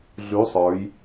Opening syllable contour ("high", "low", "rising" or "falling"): rising